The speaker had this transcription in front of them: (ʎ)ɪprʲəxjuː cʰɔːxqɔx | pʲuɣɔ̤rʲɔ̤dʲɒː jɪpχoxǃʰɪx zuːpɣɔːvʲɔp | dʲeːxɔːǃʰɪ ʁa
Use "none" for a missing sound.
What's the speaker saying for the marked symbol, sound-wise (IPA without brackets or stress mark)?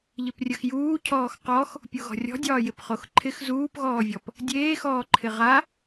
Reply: ʎ